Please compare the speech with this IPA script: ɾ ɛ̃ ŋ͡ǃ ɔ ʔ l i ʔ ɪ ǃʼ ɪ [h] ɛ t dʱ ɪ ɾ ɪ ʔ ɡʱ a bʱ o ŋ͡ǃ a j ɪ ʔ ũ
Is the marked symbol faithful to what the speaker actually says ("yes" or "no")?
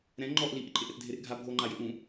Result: no